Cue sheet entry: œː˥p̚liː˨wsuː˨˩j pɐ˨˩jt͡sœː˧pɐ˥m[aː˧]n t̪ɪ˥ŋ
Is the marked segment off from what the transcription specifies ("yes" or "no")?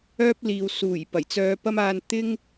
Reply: no